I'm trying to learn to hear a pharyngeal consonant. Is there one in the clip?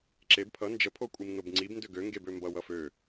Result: no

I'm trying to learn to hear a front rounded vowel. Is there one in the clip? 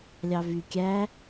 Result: yes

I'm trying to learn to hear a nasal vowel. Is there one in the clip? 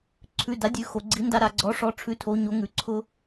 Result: no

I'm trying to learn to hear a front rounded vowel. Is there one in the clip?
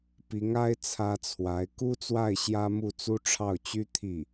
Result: yes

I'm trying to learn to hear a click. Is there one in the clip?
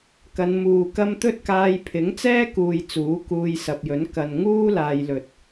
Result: no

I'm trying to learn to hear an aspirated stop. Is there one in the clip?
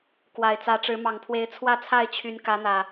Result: yes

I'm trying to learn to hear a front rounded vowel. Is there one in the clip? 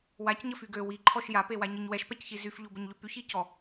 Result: yes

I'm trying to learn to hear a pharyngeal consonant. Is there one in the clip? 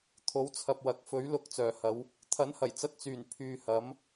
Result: no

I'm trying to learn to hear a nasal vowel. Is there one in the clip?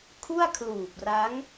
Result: no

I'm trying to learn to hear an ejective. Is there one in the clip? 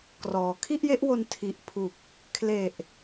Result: no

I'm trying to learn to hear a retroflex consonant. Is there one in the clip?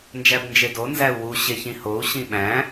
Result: no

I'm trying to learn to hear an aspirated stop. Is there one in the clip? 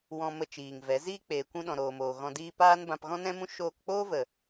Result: no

